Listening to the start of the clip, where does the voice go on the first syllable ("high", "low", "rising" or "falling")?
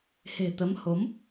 low